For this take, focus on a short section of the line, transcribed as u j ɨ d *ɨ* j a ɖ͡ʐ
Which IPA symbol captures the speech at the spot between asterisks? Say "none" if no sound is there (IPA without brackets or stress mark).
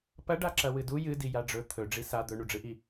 i